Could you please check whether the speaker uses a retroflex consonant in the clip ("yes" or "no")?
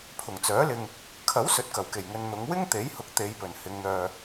no